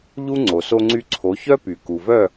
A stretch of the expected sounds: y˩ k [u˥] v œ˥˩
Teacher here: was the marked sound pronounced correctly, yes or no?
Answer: no